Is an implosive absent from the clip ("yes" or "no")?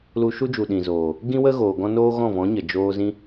no